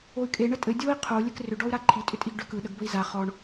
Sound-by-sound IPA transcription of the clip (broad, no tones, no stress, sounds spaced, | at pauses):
o y̯ kʼ e ɳ ə tʼ ɘ dʲ o i̯ qʰ o lʲ ɘ k r ʏ ɖ ɔ u̯ ɾ a ǃʰ i tʼ ʏ tʼ i ɡ ɖ ʏ k ɯ ɗ ə ɡ b ə i̯ z a χ ɔ ɳ